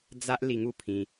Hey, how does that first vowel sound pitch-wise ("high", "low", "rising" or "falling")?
high